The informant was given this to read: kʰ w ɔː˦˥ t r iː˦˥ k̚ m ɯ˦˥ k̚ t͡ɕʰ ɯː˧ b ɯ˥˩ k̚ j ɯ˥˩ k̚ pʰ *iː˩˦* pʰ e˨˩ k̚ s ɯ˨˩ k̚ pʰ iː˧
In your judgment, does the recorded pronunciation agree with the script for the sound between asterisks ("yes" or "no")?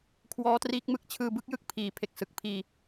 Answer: yes